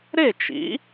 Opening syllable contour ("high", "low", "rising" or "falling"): falling